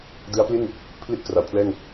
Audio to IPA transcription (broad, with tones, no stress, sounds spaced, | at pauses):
d ɯ˦˥ a̯ p l i˥˩ n | pʰ l i˥˩ t̚ k r a˩˦ w pʰ l ɛː˥˩ ŋ